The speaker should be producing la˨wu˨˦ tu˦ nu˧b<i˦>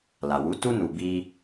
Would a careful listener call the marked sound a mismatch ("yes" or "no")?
no